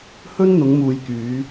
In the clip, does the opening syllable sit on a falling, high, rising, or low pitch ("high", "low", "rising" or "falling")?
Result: high